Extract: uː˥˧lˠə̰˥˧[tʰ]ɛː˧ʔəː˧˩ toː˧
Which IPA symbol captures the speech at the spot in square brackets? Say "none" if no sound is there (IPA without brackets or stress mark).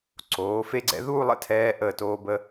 tʰ